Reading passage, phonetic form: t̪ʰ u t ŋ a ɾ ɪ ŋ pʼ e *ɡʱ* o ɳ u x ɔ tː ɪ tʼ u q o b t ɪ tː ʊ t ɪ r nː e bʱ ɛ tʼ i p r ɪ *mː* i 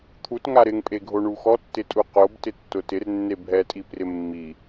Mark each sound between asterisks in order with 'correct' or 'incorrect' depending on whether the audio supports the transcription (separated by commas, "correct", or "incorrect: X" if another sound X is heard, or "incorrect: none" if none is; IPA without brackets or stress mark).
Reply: correct, correct